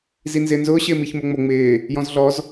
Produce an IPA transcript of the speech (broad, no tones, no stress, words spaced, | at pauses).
zinzɪːnzʊː ɕɪːmiçmoŋ͡mo ŋ͡mɪː | jɔ̃zɮɔz